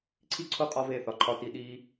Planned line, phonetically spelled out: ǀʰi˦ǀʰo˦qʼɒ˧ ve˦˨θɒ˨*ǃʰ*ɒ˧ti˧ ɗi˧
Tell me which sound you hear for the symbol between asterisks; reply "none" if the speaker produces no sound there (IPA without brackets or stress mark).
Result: ǃʰ